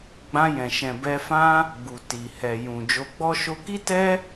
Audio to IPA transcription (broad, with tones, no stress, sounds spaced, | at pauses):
ɡ͡b ã˧ j ɛ̃˨ ʃ ɛ̃˨ b ɛ˧ f ã˦ | ɡ͡b u˨ t i˨ h ɛ˨ j ũ˨ d͡ʒ o˧ ɡ͡b ɔ˦ ʃ o˧ k i˦ t ɛ˦